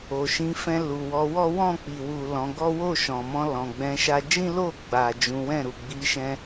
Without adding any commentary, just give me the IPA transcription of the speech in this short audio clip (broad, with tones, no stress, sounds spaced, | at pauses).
o˨ ʃ ĩ˨˦ f ɛ̃˧ l u˨ w ɔ˨˦ w ɔ˦ w ɔ̃˦˨ k͡p i˨ w u˨ l ɔ̃˨˦ ɡ ɔ˦ w o˦˨ ʃ ɔ̃˨ m ɔ̃˧ l ɔ̃˨ ɡ͡b ɛ̃˨˦ ʃ a˧ d͡ʒ ĩ˦ l o˦˨ ɡ͡b a˨ d͡ʒ ũ˨˦ w ɛ̃˦˨ ɾ u˨ ɡ͡b i˨˦ ʃ ɛ̃˧